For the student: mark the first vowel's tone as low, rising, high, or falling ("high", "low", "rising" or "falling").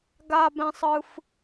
high